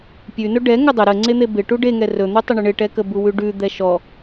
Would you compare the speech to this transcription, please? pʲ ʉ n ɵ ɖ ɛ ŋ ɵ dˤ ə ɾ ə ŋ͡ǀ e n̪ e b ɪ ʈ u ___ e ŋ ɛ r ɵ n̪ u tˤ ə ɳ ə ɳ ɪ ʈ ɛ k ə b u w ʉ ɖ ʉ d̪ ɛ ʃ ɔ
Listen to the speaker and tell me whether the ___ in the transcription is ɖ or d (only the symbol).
ɖ